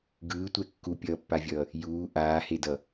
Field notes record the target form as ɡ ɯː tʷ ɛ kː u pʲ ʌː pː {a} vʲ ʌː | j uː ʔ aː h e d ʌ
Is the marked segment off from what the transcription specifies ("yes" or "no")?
no